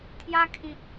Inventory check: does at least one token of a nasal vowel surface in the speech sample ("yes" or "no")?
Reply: yes